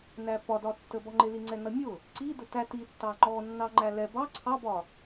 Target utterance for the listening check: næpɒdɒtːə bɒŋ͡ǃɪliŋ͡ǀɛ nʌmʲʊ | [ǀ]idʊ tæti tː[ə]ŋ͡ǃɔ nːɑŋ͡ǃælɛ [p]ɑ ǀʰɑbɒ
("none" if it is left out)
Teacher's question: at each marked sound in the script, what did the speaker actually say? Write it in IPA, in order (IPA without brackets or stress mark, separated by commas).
ǀ, ɑ, b